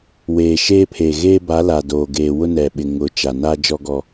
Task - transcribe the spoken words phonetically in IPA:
weː˨ʃeː˦pʰeː˨ ɣeː˦ba˨˦ la˨doː˨ɡeː˨ wʊ˦nɛ˨ɓɪ˨ ŋʊ˨˦t͡ʃa˨ naː˦d͡ʒɔ˦ɡɔ˦

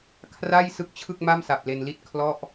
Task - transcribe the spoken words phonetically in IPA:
kʰra˥˩j sɯ˥˩k̚t͡ɕʰɯ˥˩k̚ma˥˩msa˨˩p̚ le˧nli˥˩t̚ kʰlɔ˥˩ʔ

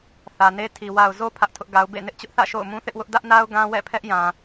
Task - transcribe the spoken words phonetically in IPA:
θä˨ne˦ tʰi˨ wa˨ʊ̯zo˦ pʰä˦ʔtʰʊ˦ʔɡa˦ʊ̯ bḛ˦˨ nɪ˦ʔt͡ɕʊ˦ʔθä̰˦˨ ʃo̰˦˨ʊ̯mũ˦θɪ˦ʔwʊ˦ʔ dä˦ʔna˦ʊ̯ ɡã˦wɛ̰˦˨pʰɛ˦ʔjã˨

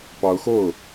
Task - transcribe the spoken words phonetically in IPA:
pɑ˧˥ʊ̯xo˥˩ʊ̯

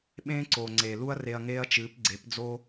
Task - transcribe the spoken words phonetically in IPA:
ɓẽː˦ǀoː˨ŋ͡ǀeː˨ lu˦ɐ̯ re˧ɐ̯ŋeː˦ɐ̯t͡ʃɨː˨˦p ɡ͡ǀe˨˦pd͡zoː˦

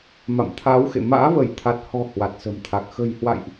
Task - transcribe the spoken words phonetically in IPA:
ma̰˧˨mt̪ʰaː˨˦wxḛ˧˨ ma̰ː˧˥və˧˩jt̪ʰa˨˩t̚hɔ̤˨˩ hwa˨˩t̚sə̤˨˩mt̪ʰa˨˩k̚ xə̤˨˩jhwa̰˧˨jʔ

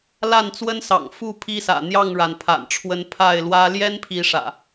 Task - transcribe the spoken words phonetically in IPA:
la˥˨nt͡swə˦nsɑ̰˨˩ŋ fu˥˨ pʰi˦sä̰˨˩ n̪jɑ˥˨ŋɻa˩n pʰa̰˨˩nʈ͡ʂʰwə˨˦n pʰa˥˨ɪ̯lwä˦ ljɛ˦npʰi˨˦ ʂä̰˨˩

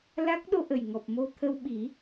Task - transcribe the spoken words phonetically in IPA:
la˦˥k̚ ɗo˧ʔə˨˩jŋɔ˨˩p̚ mo˧t̪ʰə˧wɓi˨˩˦

